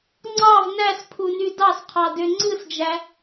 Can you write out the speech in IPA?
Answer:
ŋ͡ǀ ɑ v n æ s pʰ u n y d ɑ s qʰ ɑ d ø ŋ͡ǀ ɯ s d͡ʒ æ

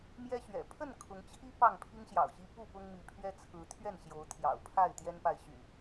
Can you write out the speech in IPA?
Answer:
m j ɛ˦ ɕ ɥ ɛ̰˨˩ pʰ ə˥˨ n kʰ ʊ˨˦ ŋ t͡ɕʰ i˦ p ɑ˥˨ ŋ pʰ i˦ ŋ ɕ j ɑ̰˨˩ ʊ̯ ɕ i˦ p u˥˨ p ʊ˦ ŋ m i˨˦ pʰ ɥ ɛ˦ t͡sʰ ɹ̩˨˦ t̪ʰ ɥ ɛ˥˨ n ɕ j o˨˦ ʊ̯ t̪ʰ j ɑ̰˨˩ ʊ̯ pʰ a˥˨ ɪ̯ t̪ j ɛ˦ n p a˨ ɪ̯ ɕ y̰˨˩

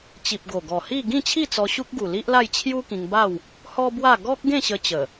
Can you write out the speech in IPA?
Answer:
t͡ɕ i˨ p̚ ɡ o˨˩ ɡ ɔ˨˩ h i˥˧ ɡ ĩ˥˧ t͡ɕʰ i˥˧ t͡s ɔ˧ ɕ u˦ k̚ ɡ u˨˩ l i˦ ʔ l a˥˧ j t͡ɕʰ j u˦ k ĩ˧ ŋ b a˥˧ w | h ɔ˦ b w a˥˧ ɡ ɔ˦ k̚ ɡ ẽ˥˧ ɕ ə˧ t͡ɕ ə˨˩

